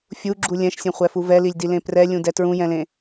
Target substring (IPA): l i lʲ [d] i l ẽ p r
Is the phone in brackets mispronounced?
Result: no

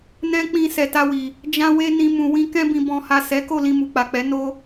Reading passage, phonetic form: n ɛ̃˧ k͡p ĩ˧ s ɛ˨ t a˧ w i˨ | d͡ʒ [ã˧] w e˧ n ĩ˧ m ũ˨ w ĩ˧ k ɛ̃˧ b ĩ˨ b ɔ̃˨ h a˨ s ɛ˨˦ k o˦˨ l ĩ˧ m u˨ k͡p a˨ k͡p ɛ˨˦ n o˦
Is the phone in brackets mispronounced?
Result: no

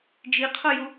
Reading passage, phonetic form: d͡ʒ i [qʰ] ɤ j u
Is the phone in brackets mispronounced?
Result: no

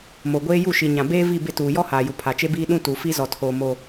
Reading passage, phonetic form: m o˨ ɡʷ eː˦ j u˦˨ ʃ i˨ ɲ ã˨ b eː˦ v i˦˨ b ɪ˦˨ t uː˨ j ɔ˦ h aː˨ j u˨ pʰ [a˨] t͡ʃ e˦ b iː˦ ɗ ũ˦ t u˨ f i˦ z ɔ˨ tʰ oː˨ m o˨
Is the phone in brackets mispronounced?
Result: no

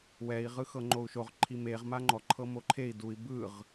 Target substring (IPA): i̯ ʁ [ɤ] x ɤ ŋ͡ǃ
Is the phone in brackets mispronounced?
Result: yes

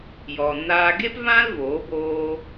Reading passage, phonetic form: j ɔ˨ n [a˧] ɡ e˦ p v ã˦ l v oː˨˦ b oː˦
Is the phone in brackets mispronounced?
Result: yes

